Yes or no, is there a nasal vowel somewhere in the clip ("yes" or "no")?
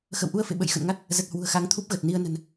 no